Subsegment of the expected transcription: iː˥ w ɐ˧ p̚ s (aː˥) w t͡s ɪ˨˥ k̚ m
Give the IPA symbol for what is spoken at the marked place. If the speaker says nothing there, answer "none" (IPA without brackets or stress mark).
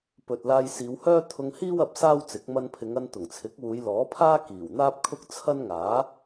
aː˥